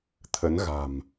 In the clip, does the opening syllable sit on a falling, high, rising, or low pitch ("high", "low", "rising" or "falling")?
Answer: rising